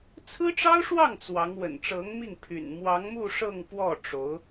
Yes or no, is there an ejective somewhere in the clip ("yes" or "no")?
no